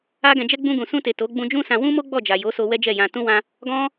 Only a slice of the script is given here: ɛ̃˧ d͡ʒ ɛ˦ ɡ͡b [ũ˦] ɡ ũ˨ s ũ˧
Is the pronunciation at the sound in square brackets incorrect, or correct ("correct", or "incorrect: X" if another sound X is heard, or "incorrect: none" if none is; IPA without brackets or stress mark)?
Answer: incorrect: ũ˧